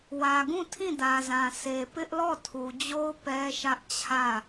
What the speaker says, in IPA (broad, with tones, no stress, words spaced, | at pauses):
wä˨ɡũ˦˨ tʰĩ˦˨dä˨zã˨ se˨ pɪ˦ʔlɔ˦˨ tʰu˨d͡ʑo˦ʊ̯ pɛ˦ʃä˦ʔ t͡ɕʰä˦˨